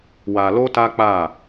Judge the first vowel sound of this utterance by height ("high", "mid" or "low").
low